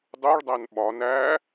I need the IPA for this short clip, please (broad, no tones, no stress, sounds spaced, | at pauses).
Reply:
dˤ u ɭ dˤ æ n ɓ ɒ n æ